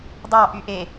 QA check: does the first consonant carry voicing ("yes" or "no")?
yes